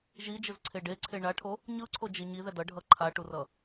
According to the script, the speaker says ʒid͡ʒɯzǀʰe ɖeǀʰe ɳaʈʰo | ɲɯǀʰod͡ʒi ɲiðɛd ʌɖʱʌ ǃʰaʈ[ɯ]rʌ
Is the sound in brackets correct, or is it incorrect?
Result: incorrect